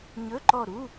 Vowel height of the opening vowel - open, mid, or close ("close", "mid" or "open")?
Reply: mid